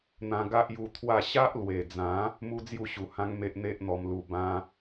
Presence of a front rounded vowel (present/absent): absent